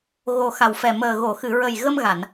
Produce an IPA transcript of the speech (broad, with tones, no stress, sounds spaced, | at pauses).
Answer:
ɣ o˨˩ x a˨˩ w f ɛ˨˩ m əː˨˩ ɣ o˨˩˨ x ɨ˨˩˨ ɹ ə˨˩ j ɣ ə˧ m ɣ a˨˩˨ n